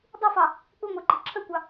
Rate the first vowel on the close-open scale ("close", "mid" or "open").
close